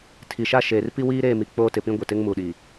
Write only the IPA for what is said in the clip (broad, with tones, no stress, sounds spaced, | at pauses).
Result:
tʰ i˨ ʃ a˦ ʃ e˨ r p i˦ w iː˦ ɾ eː˦˨ m i˨ k͡p oː˦ t ɪ˨ p ĩ˦ ɡʷ ɪ˨ t ɪ˦ ŋ m u˨ ɗ iː˨